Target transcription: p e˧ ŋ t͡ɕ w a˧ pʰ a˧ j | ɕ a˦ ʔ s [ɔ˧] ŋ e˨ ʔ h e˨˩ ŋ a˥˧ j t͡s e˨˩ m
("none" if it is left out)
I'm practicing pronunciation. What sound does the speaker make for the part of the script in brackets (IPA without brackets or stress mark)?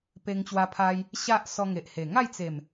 ɔ˧